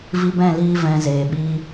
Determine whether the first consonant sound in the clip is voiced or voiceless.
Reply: voiced